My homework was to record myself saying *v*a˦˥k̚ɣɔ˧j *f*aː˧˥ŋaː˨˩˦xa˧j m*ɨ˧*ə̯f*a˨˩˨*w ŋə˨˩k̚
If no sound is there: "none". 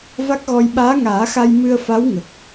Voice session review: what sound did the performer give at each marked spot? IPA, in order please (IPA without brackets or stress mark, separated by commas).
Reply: v, ɓ, ɨ˧, a˧˥